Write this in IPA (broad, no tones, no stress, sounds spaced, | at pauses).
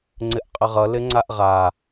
ŋ͡ǀ ɪ ʔ qʼ ə ʁ ʌ l ɪ ŋ͡ǀ a ʔ ʁ a